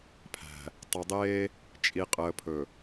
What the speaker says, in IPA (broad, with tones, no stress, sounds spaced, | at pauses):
pʰ æ̤˨ | tˤ ɵ˨ dˤ eː˦ | t͡ʃʼ i˨ qʼ əː˨ pʰ ɵ˨